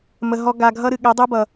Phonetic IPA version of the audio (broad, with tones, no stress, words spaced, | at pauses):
mə˨ ɦɔ˧ ɡa˨ɡʱʌ˧ ɾɨ˨ɠɛ˨˦dˤu˦bʌ˨